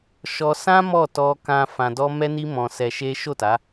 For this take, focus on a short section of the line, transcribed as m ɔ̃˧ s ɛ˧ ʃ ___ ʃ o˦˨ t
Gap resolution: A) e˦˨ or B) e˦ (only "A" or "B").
B